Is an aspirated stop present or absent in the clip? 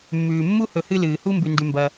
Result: absent